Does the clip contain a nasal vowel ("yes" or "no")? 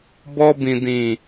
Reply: yes